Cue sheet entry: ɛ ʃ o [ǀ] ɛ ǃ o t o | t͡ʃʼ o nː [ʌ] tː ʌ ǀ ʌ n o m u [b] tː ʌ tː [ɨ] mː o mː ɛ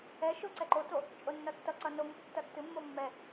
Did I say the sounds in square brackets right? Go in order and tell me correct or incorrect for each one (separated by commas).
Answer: correct, correct, correct, correct